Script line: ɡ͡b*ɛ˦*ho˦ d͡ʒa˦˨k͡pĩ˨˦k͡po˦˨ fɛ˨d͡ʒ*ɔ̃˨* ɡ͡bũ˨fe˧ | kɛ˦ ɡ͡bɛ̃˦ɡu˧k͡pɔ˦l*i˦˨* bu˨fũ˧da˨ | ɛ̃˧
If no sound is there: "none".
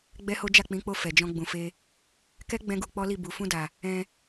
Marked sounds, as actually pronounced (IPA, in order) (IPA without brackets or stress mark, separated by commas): ɛ˦, ɔ̃˧, i˦˨